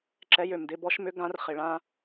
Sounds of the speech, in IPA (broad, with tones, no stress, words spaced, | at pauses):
ǁɛ˨˥jø˩mdɪ˧ bɔ˨˥ʃmʏ˨˥ ɡã˨˥rχɪ˩ɭã˧